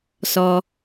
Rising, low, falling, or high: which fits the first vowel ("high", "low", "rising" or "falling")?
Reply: high